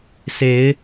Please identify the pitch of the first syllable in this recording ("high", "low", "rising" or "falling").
rising